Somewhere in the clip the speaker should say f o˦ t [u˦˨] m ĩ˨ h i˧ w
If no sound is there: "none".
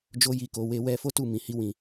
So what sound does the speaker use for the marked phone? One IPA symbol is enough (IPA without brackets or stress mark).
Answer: u˦˨